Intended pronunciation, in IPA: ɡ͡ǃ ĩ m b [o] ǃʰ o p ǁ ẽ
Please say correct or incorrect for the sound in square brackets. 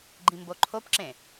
correct